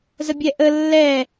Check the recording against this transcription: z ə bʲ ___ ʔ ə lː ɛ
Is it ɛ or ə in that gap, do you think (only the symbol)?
ɛ